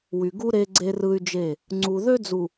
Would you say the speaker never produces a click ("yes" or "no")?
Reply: no